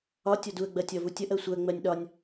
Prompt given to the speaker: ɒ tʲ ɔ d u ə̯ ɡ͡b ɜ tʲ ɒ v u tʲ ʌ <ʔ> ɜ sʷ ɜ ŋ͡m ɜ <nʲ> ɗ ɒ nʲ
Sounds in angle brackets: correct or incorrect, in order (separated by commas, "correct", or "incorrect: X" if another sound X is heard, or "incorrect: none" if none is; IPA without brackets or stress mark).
correct, correct